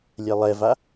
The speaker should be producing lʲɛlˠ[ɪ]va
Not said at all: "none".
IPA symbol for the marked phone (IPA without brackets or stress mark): ɛ